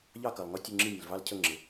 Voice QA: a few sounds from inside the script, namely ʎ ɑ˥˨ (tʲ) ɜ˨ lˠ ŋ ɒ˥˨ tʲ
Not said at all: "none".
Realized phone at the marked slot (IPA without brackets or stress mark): k